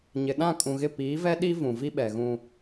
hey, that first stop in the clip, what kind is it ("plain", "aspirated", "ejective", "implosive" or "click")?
implosive